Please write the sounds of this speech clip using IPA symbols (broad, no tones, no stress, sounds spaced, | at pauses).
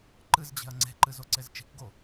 ǃ ɨ z d͡ʑ e̤ ɐ̯ ŋ͡ǀ e̤ ǃ ɨ z o ǀ e z t͡ʃ i̤ k ɡ o